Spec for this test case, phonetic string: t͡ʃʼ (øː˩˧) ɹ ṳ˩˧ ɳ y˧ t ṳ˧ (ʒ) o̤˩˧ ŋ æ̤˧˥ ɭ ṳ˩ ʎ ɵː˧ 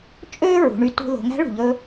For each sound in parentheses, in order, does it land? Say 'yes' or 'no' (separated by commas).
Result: no, no